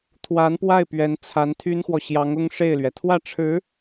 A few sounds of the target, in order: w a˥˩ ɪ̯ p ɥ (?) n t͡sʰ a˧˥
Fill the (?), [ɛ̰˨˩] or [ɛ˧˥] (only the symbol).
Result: ɛ˧˥